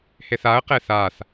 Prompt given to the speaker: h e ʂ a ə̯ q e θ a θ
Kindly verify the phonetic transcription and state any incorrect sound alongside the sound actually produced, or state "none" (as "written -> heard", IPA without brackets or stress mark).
ʂ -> θ